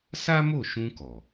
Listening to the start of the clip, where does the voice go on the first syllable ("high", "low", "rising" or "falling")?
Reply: high